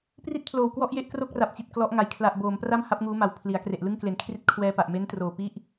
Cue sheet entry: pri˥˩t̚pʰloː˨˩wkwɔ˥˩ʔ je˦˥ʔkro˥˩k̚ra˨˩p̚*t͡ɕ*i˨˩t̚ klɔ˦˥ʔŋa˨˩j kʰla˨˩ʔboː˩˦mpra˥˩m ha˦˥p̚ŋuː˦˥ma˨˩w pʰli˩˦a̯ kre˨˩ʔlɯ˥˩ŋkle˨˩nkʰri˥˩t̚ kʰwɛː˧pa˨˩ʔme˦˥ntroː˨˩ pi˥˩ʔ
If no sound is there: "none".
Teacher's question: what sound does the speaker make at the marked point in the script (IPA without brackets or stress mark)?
t͡ɕ